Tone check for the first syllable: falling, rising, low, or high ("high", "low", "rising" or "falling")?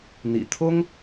low